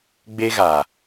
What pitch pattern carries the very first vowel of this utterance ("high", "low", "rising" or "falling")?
high